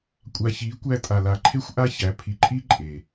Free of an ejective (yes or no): no